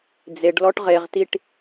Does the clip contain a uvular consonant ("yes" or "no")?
yes